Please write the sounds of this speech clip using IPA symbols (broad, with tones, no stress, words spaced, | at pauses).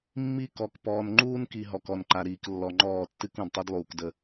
mːi˦kɔ˨k pɔː˨nŋ͡ǃuː˦nki˨ ɦɔ˨kɔ˨nǃa˨ɾiː˨k lːɔ˨ŋ͡ǃɔː˦˨tːɨ˦k ũ˨dtˤi˦dlˠuː˨kdə˦˨